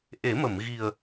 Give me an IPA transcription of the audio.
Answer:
ʔ e˨˩˦ m ə˨˩˨ m ɣ i˨˩ ə̯

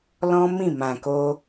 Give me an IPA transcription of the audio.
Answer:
l ɔ̃˦ m ĩ˦˨ m ã˨ k o˧

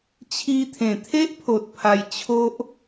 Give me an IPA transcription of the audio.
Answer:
t͡ɕʰ i˧ t̪ʰ ẽ˨˩ t̪ʰ e˦ ʔ pʰ o˨ t̚ pʰ a˧ j t͡ɕʰ o˦ ʔ

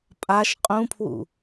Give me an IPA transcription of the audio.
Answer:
pʼ a ʃ qʼ ũ pʰ w ṵ

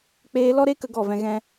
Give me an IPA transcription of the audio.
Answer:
k͡p eː˧ l ɔ˦ ɾ e˦ k ə˦ ɡ ɔ˦˨ v ɛ̃˧ ɣ ɛ̃˦

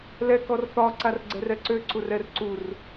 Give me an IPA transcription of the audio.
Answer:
l ɛ k ɔ r θ ɒ ǀ a r ɡ͡ǀ ɛ r ɛ ǀ ø ǀ u r ɛ r ǀ u r

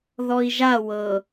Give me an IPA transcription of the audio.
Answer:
ð ɔ i̯ ʒ a w ɤ

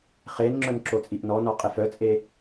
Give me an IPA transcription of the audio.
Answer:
χ e n ŋ͡ǁ œ n ǁ o t͡sʼ i ʔ n ɔ n ɔ qʼ e f œ t͡sʼ e

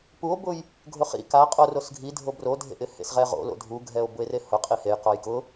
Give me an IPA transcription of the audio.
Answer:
p u o̯ b ʊ j | ɡʱ ʊ χ ḭ k a qʼ o r o s ɡʱ i dʱ o b r o dʱ ḛ ʔ ɪ h ḛ s ʁ ɛ ʁ o̰ l o̰ dʱ u ɡʱ ɛ o̯ b ʊ e̯ r e h ʊ qʼ i h e j q ɔ j k ʊ

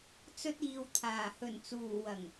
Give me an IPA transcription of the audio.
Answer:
t͡s ɵ˧ t̚ iː˨ w t̪ʰ aː˨˩ h ɵ˨˩ n t͡s uː˨˩ w ɐ˨˩ ŋ

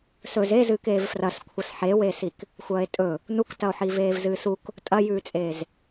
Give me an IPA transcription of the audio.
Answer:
s ɵ z e z ɨː k eː v f r ɐ s kʷʰ ɐ s ħ e w eː s i k | xʷ ɐː e̯ tʼ ɵ | n u k t ɐ o̯ ħ i v eː v z ɨː s u k | tʼ ɐ j ʉː t͡sʼ eː z

